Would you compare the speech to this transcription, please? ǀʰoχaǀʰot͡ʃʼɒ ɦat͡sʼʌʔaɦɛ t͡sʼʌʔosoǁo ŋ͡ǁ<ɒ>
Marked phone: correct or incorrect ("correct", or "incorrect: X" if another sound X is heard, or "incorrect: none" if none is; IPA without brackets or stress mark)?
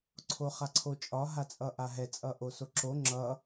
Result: incorrect: ʌ